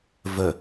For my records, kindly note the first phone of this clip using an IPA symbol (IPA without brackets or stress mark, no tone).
v